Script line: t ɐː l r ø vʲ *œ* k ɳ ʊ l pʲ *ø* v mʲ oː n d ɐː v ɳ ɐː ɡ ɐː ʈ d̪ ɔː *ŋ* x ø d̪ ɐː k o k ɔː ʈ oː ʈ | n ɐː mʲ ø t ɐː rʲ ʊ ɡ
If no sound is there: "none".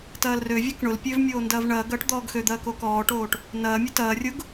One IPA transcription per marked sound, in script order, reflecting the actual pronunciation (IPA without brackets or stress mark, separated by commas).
œ, ø, ɡ